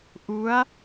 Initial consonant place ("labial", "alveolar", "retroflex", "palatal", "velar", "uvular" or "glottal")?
glottal